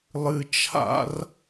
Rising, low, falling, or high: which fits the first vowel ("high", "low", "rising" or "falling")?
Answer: high